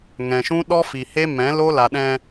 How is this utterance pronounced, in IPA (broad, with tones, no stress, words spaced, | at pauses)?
ŋɛ̃˨ʃũ˦ ɗɔ˦fi˨ he˦mɛ̃˨˦lo˦ la˨ɗɛ̃˧